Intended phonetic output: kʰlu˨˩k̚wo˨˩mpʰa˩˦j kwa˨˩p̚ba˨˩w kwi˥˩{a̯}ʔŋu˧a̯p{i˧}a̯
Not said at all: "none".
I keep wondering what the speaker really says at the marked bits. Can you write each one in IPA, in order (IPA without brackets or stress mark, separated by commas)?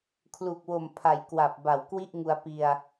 none, i˧